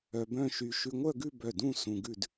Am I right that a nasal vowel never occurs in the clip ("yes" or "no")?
no